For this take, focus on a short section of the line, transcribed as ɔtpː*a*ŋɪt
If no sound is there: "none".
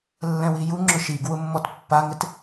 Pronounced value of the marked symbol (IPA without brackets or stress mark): a